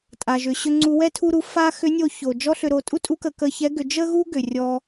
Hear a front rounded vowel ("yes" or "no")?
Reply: yes